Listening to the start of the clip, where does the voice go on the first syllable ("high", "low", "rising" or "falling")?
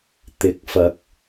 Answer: rising